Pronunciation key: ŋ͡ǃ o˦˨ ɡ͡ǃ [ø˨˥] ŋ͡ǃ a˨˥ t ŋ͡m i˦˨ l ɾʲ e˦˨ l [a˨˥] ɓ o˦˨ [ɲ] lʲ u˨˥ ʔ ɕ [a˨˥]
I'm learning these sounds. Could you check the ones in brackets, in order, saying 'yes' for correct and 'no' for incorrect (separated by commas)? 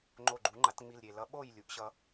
no, no, no, no